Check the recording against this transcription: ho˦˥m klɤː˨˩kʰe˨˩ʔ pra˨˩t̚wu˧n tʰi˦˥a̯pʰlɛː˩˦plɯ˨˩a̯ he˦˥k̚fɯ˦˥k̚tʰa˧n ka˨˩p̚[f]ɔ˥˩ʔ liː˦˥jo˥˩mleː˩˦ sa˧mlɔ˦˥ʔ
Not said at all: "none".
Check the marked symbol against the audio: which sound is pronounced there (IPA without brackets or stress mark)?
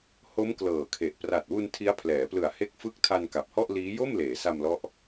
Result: h